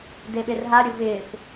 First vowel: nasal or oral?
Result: oral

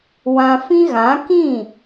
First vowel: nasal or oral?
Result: nasal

